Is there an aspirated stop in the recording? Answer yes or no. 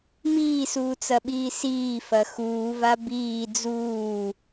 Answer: no